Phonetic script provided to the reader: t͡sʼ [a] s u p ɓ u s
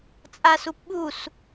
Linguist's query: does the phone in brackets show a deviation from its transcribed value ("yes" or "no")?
no